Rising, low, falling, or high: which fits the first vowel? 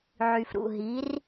low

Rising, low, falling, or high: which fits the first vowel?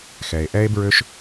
low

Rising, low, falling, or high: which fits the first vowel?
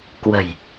low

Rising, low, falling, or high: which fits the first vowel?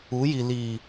rising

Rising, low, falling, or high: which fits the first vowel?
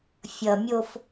low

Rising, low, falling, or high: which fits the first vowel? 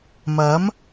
rising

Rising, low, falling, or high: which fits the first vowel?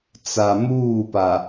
low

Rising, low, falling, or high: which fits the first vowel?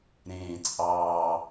low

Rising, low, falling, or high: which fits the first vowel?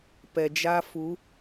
low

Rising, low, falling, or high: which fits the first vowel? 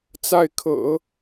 falling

